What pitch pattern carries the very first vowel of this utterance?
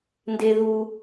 high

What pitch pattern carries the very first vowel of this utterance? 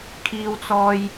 high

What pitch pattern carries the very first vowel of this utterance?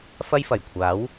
high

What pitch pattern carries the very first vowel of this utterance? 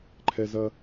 high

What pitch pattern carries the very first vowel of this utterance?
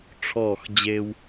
falling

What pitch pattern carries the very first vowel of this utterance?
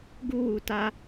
high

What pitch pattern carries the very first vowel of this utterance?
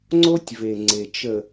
high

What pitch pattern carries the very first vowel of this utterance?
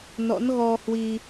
rising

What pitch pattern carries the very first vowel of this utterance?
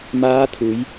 rising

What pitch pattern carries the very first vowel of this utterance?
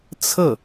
falling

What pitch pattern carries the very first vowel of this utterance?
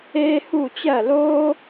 high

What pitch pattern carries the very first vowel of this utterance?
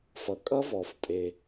low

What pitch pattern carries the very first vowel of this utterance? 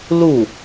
falling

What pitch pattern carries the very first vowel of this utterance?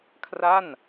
falling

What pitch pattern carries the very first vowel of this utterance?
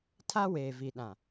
high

